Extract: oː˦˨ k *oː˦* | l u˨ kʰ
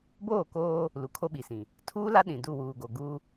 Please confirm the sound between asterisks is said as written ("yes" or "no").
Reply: yes